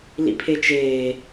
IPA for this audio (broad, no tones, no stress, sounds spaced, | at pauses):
l ḭ pʰ e t͡ʃ eː